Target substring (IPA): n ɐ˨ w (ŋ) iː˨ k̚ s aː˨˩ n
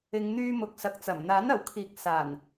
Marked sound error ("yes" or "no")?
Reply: yes